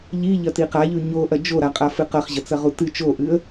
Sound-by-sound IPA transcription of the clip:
ʎ i ʎ ɐ t i q a ʎ ʉ ɲ o ʔ ɐ d͡ʒ o ɾ a qʼ a f ɨ q ɐ χ ʑ ɐ t͡s ɐ ʁ u t ɨ t͡ʃ o ʔ ɨ ə̯

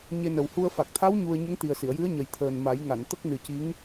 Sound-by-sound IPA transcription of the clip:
ɲ e˧ n ə˨˩ w h u˧ ə̯ f a˨˩ k̚ t̪ʰ a˧˥ w ɲ u˧ ə̯ ɲ ə˧˥ ŋ t̪ i˨˩ ə̯ s i˨˩˨ ə̯ j ɨ˧˥ ə̯ ɲ ə˨˩ j t̪ʰ əː˨˩ n m a˨˩˦ j ŋ a˨˩˨ n t̪ ə˦˥ k̚ n ɨ˨˩ c i˧˥ ŋ

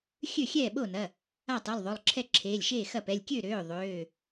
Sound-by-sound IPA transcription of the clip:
xʲ ø˥˩ xʲ ɛː˥˩ ɓ o˥˩ n ɐ˩˧˩ | a˥˩ tˤ u˩˧˩ lˠ ðˤ o˩˧˩ lˠ ǁʰ ɛ˥˩ ǁʰ eː˩˧˩ lʲ ʃ eː˥˩ x ɐ˥˩ p ɛ˩˧˩ lʲ kʲ ø˥˩ ɾ øː˩˧˩ ðˤ øː˩˧˩

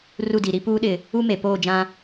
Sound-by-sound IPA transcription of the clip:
r u˦˨ d i˨ ɾ i˦ p uː˦ ɗ ɪ˨ | u˦ m e˨ p oː˦˨ d͡ʒ ã˦

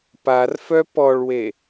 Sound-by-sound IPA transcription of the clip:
p a r f œ p ɔ ɭ w e

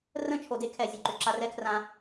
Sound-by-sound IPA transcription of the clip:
r ə̃˦˨ t͡ʃʰ o˨ d e˦ kʰ ɛ˨ zʲ ʉ˨ ǃ ʏ˨ ǁ a˧ r ɛ˦ kʰ r ã˧

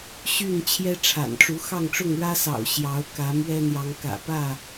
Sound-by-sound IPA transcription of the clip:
ɕ y˥˨ n t͡ɕʰ j ɛ˦ ʈ͡ʂʰ a̰˨˩ n ʈ͡ʂ u˨˦ x ɑ˥˨ ŋ ʈ͡ʂ ʊ˥˨ ŋ ɻ ä˦ s ɑ̰˨˩ ʊ̯ ɕ j ɑ˨˦ ʊ̯ k ä˨˦ m ɥ ɛ˦ n̪ j ɑ˨˦ ŋ k ä̰˨˩ p ä˥˨

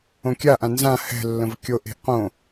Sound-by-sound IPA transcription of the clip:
õ kʲ a ʔ ã n z ã h ɛ̤ lː ə̃ v kʲ o ʔ e̤ ʔ q õ

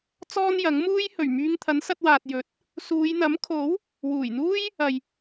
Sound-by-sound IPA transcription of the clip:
t͡s ɔː˥ n j ɐ˨˥ ŋ m uː˥ j h ɵ˨˩ ɥ m yː˧ ŋ t̪ʰ ɐ˨˥ n s ɐ˧ t̚ w aː˨ t̚ j ɵ˨˥ t̚ | s uː˨˧ j n̪ ɐ˨˥ m kʰ o˨˥ w | w uː˨˩ j n̪ uː˥ j | ɐ˨ j

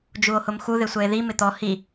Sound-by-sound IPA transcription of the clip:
d͡ʒ u o̯ h ʊ m x u ð ɪ sʷ ɛ e̯ ð i m ɪ t̪ ɔ h i

